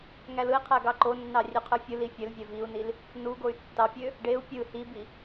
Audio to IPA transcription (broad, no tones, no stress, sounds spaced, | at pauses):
ŋ æ l ɯ i̯ qʰ æ ɡ ɑ ǃ o nː ɑ rʲ ø qʰ ɯ fʲ ɯ l i fʲ ø l vʲ æ v i u̯ n i l | n u ɡ o y̯ tː ɑ pʲ ø | ɖ e u̯ pʲ ɯ h i b i